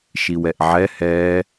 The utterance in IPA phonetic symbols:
ʃ i w ɛ ʔ ʕ ɛ h ɛː

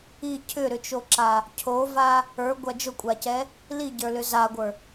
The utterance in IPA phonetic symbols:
i cʰ ʏ ɾ ʏ t͡ʃ o ǁ a | cʰ o v a | ə˞ ɡʷ a d͡ʒ ʊ kʷʼ a c ɛ | l i ɟ ə˞ l ʏ z a ɡʷ ə˞

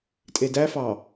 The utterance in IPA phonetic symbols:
tʼ e d æ f ɑ

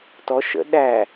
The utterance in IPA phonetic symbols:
t ɔ ʃ ə̰ ɗ æ

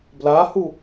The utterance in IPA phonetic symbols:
b l a h u

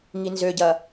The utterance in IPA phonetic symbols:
ŋ i n z ø ɟ ɐ

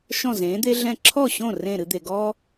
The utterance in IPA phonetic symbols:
ʃ ɔ̃˥˩ z ẽː˩˥ d̪ e˥ ɮ ɛ̃˥˩ ǁʰ ɔ˥˩ ɕ õ˥˩ r ẽ˥˩ ɾ ɨ˧ d̪ e˩ ɡ ɔ˥

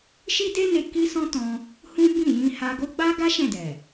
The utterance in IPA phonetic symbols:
ʃ i˦ d e˦ n e˧ k i˦ s ɔ̃˦ t ɔ̃˧ | h ũ˦ b ĩ˦˨ j ĩ˧ h a˧ ɡ o˦ ɡ͡b a˦ ɡ a˦ ʃ ɛ̃˦˨ d ɛ˨

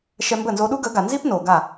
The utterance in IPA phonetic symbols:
ʃ ɛ˧ m b ə˦˨ n z o˧ ɗ u˦ ɡ ə˨˦ ɡ a˨ n z i˦ p n o˨ ɡ a˦˨

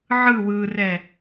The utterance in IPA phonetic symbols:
ʕ ɯ w ɯ r ɛ

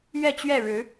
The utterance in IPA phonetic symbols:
ɥ ɛ˥˧ t͡ɕ ɥ ɛ˥˩ ɻ ɻ̩˧˥

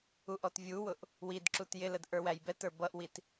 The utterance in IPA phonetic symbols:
u ʔ ɔ t vʲ u w ʊ ʔ | w i d ǁ u t j ɪ l ə d ʔ ə˞ w æ j b ɛ t ə˞ b ʌ ʔ w i t

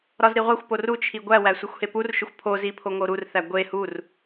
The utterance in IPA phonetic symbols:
ɾ ɒ z ɾ i ʁʷ æ xʷ p o r u t͡ʃʰ i ɡʷ æ w æ sʷ e xʷ h e p u r ʃ o xʷ pʰ o z i pʰ o ŋ o ɾ u r θ æ ɡʷ e h u r

